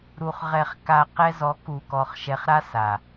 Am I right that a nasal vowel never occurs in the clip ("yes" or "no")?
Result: yes